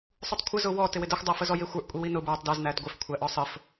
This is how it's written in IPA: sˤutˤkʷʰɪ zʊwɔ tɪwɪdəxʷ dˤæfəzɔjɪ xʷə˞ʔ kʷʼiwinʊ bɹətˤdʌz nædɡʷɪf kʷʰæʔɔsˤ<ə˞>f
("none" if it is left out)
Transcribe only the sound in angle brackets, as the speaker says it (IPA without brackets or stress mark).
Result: ə